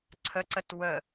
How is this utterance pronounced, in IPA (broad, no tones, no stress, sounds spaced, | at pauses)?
ǀʰ ə ǀ ə t w ə